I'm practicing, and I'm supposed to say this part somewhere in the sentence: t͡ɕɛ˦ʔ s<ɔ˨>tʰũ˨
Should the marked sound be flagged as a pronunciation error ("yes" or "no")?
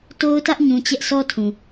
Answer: yes